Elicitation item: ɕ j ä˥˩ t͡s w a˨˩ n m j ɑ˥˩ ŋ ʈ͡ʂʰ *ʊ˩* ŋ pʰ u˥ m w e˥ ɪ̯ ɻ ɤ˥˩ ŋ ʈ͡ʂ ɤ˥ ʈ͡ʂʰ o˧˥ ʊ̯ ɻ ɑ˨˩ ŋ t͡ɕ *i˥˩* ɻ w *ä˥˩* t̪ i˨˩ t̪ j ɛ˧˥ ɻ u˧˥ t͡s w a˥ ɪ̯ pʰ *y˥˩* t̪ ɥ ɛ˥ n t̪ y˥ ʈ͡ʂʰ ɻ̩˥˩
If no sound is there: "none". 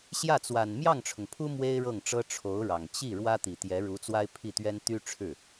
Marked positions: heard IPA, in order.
ʊ˩, i˥˩, ä˥, i˥˩

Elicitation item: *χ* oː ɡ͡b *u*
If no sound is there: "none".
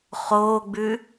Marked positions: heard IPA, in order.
χ, ʉ

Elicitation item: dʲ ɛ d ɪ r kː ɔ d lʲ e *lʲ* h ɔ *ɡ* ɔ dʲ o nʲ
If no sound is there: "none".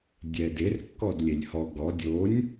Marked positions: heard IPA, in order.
lʲ, ɡ

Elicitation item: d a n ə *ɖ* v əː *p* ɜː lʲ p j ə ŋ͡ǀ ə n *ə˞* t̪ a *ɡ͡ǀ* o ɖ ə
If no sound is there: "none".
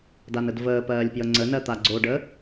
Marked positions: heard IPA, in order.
d, p, ɜ, ɡ͡ǀ

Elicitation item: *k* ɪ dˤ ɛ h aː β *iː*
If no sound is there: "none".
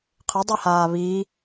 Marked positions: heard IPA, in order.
qʰ, iː

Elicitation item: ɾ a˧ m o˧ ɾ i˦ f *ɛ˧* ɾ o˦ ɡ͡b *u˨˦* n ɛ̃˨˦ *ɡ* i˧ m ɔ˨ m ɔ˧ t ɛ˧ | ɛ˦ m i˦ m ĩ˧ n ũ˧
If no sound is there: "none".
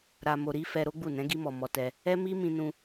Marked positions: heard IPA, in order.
ɛ˧, u˦˨, ɡ

